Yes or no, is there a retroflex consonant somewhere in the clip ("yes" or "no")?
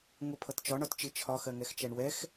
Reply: yes